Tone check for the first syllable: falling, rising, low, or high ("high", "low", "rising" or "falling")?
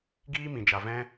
high